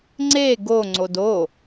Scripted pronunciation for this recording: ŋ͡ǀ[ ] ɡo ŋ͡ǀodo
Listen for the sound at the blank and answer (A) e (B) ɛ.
A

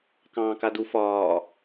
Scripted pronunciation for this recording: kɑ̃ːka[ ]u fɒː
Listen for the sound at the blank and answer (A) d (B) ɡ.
A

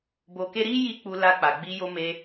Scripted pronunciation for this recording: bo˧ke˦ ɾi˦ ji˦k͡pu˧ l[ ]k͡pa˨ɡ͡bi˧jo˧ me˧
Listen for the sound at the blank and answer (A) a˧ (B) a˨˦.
A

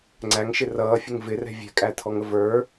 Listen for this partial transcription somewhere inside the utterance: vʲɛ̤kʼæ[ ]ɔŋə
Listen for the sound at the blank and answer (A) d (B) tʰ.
B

